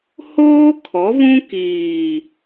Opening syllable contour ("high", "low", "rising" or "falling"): high